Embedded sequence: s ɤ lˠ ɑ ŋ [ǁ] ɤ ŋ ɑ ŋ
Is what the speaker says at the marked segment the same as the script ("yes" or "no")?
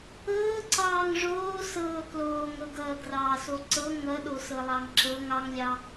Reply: yes